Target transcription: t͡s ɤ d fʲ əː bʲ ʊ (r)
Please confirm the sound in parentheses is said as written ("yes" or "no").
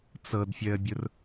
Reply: yes